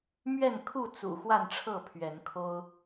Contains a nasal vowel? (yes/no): no